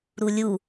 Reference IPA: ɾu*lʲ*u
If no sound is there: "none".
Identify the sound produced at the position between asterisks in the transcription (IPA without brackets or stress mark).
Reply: lʲ